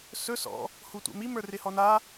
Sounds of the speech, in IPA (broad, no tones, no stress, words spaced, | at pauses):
sɵ sɔ̰ | hutʷɛ̰mi mə˞rɪhɔna